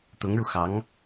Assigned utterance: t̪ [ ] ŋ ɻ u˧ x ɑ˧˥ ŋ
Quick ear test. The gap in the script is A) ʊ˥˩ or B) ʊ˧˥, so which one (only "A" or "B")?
B